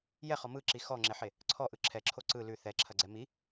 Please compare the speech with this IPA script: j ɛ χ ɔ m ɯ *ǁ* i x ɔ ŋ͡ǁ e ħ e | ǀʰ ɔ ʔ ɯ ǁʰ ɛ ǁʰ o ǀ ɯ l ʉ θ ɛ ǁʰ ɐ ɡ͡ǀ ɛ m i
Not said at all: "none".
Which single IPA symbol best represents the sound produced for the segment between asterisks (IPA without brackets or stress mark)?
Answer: ǁ